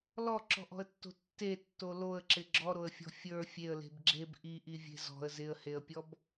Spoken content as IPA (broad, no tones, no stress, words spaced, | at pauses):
lɔǁɔ̤ʔɔ̤ə̯tːo̤ tːetːo loə̯ǁɪ ɡ͡ǁɔɾoə̯fʲɔ̤ fʲə˞ fʲeə̯le̤b ɡ͡ǁeb ʔiʔivʲe̤ zɔ̤ə̯ zɪə̯heə̯pʲɔb